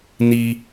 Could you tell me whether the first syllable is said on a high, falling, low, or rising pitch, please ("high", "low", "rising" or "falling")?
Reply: high